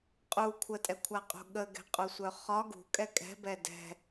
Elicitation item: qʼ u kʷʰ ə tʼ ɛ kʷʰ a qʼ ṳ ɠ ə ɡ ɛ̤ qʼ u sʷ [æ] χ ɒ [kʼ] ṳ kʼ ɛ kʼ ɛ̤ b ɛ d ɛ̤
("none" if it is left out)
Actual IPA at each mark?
œ, ɡ

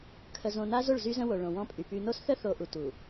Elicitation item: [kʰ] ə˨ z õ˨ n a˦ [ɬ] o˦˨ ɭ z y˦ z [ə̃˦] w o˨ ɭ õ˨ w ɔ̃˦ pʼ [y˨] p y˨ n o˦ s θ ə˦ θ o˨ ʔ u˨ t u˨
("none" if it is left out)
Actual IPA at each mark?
kʰ, z, ə̃˦, y˨

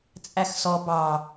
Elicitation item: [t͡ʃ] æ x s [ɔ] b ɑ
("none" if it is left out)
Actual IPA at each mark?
t͡sʼ, ɔ

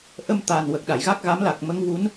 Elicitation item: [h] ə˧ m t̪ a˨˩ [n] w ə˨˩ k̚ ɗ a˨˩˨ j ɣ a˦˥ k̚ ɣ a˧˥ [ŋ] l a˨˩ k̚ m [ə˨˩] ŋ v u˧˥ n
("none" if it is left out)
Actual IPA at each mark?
ʔ, n, m, ə˧˥

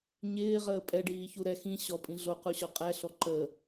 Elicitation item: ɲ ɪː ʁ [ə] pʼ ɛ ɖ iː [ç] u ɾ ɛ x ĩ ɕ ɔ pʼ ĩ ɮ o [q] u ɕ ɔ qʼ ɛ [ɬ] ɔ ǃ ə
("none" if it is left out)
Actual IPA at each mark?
əː, ç, q, ɬ

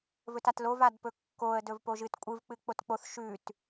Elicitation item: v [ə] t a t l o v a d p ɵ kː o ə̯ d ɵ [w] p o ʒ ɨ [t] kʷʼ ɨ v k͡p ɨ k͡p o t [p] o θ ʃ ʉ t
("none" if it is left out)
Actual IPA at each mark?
ɵ, v, t, k͡p

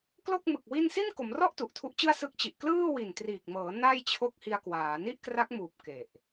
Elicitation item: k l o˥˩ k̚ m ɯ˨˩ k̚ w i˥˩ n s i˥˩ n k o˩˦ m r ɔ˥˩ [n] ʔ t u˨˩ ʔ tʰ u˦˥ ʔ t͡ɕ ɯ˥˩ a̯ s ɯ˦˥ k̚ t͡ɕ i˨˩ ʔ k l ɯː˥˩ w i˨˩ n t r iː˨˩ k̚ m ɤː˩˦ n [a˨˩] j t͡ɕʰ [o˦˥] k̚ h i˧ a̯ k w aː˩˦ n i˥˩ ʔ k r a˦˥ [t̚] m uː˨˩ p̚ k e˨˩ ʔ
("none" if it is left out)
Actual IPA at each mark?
none, a˥˩, o˦˥, k̚

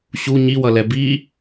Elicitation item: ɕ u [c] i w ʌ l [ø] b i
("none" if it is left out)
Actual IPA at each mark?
ɲ, ɛ

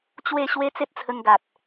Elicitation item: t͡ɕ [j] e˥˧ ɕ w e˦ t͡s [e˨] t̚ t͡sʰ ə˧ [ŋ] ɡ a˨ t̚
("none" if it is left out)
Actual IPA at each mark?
w, e˦, ŋ

